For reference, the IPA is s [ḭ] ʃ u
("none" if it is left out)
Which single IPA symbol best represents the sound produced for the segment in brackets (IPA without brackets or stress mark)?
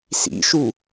ḭ